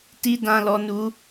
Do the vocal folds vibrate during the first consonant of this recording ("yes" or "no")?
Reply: no